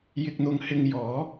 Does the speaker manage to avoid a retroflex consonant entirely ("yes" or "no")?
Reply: yes